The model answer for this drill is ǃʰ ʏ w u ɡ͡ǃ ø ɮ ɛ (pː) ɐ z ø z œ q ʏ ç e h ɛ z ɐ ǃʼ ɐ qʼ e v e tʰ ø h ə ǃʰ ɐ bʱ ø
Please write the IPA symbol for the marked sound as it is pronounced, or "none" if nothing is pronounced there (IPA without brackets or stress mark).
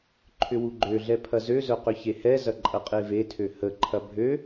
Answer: pʰ